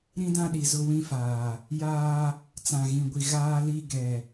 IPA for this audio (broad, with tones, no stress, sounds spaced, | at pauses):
ɾ ĩ˦ d ã˦ ɗ i˨ z ʊ˦ w ĩ˦ f aː˨ | j aː˦ | t͡s ã˨ ɣ ĩ˨ ɡʷ i˨ ɣ aː˦ l i˦ ɡ ɛ˨